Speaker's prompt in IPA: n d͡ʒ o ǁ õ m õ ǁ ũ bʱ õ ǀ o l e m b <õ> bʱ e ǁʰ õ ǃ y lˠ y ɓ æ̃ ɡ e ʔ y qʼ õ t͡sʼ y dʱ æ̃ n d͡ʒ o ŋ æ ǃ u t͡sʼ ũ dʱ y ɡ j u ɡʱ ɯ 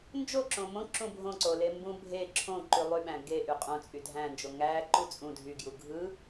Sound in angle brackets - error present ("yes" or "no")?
yes